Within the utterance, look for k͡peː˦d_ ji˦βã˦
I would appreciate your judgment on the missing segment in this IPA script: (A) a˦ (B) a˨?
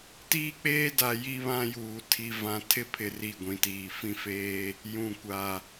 B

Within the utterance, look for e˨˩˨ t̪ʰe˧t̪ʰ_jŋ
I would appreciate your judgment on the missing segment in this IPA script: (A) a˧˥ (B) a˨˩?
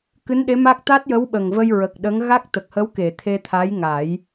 A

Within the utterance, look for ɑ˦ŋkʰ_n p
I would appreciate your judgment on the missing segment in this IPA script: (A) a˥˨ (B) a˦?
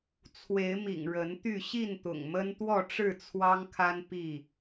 B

